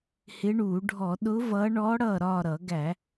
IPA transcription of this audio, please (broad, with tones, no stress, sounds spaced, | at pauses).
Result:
h ɪ˧˥ ɳ uː˧˩˧ ɖʱ ɔ˧˩˧ ɗ ʊ˧˥ v ʌː˧˥ ɳ ɔː˧˥ ɽ ʌː˦˨ ɾ ɒː˦˨ ɾ ʌ˧˩˧ ɡ æ˧˩˧